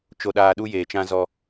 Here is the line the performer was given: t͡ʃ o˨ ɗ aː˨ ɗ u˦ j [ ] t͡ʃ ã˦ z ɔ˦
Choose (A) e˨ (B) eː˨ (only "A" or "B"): B